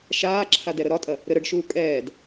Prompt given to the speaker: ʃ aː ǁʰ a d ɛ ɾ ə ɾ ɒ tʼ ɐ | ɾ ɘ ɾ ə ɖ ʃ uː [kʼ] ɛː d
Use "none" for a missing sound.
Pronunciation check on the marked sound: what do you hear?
kʼ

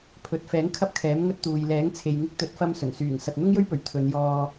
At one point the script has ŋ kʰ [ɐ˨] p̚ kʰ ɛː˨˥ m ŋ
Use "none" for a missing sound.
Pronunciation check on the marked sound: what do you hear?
ɐ˥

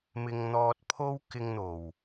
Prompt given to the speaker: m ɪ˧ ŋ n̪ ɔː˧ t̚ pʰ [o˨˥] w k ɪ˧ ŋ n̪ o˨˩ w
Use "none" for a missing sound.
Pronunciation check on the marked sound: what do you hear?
o˥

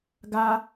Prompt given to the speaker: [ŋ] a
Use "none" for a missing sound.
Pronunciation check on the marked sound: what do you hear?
ɡ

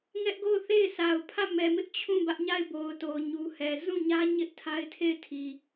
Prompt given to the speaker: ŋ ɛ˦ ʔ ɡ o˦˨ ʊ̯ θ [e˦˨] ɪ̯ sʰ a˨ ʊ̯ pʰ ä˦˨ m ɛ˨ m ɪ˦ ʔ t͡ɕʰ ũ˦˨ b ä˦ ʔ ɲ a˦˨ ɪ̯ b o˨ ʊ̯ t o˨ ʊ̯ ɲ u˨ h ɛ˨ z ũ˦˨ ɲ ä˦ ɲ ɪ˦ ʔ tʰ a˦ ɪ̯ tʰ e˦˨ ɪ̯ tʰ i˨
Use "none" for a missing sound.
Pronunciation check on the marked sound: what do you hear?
e˦˨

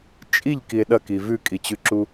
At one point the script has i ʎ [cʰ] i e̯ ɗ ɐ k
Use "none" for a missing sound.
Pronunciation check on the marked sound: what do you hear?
k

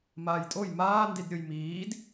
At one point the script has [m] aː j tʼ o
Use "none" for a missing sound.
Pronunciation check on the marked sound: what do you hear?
m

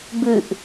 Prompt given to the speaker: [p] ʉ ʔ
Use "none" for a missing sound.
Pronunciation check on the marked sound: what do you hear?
b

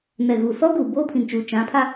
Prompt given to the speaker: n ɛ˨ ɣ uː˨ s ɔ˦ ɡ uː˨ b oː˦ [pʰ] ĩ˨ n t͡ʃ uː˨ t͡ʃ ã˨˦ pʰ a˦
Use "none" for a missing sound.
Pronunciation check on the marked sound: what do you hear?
pʰ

